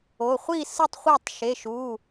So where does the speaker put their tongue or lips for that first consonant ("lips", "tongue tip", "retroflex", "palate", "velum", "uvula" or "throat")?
uvula